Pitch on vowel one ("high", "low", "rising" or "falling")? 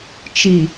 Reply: low